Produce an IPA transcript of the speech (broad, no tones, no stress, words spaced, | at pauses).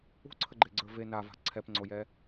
ṳǀʰəɡ͡ǃeɡ͡ǀə˞ ve nava̤ ǀʰɛpŋ͡ǀojɛ